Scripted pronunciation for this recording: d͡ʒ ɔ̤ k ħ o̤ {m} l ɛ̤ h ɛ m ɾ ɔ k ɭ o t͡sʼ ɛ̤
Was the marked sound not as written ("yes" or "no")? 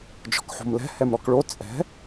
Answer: no